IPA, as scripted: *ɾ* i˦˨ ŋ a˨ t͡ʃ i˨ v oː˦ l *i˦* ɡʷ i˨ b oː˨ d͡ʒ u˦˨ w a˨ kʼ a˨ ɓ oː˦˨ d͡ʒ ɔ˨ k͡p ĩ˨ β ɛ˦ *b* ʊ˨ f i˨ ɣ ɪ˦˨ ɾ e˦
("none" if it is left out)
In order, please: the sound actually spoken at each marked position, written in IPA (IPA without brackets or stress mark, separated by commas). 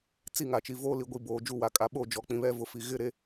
t͡s, i˨, v